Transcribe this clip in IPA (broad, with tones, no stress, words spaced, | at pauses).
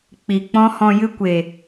k͡pi˨ k͡pɔ̃˦hɔ̃˧ jɨ˧kʷe˨